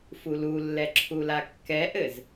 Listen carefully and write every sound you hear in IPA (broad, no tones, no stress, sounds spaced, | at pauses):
f u l u lː ɛ ǁʰ u l a kː ɛ ʔ ɘ z